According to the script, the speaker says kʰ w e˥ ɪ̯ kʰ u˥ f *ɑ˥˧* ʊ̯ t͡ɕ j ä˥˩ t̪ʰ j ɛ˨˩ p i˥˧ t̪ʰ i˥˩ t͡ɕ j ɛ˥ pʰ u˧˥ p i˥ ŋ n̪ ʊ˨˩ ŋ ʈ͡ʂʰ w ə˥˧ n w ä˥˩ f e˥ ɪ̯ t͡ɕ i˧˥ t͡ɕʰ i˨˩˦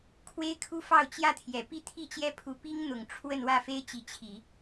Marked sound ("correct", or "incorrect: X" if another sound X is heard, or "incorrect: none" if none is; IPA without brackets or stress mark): correct